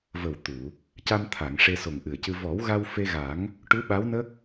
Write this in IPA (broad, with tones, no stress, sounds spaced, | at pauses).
v ə˨˩ w t̪ u˨˩˨ | c a˧ m t̪ʰ a˨˩˨ ŋ ʂ e˧ s o˨˩ ŋ ʔ ɨ˨˩ ə̯ c ɨ˧ v ɔ˨˩˦ w ɣ a˧ w f e˧ ɣ a˨˩˦ ŋ | ʈ u˧˥ ɓ a˧˥ w n ə˦˥ k̚